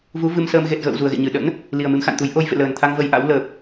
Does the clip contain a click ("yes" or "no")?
no